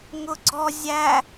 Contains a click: yes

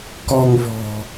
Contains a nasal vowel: no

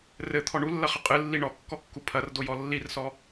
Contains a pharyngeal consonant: no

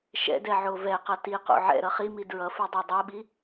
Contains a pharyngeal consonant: yes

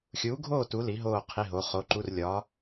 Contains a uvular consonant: yes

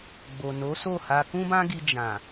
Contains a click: no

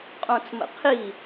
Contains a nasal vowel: yes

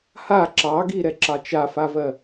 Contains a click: yes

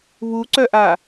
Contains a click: yes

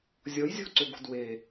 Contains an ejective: no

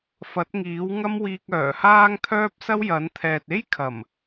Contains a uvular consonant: no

